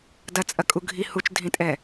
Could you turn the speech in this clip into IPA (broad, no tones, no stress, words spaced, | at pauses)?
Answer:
dɐt͡sʼɐkʼu ɡʱi hut͡ʃdʱĩtʼɛ